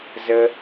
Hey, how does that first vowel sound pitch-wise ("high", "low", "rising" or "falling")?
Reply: high